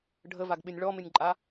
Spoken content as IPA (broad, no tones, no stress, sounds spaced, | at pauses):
ɖʱ ə v a ɡ ɓ ɪ nʲ ɭ ɔ m ɪ nʲ ǃʼ a